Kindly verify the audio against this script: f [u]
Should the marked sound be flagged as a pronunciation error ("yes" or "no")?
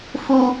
no